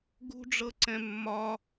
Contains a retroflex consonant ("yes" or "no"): yes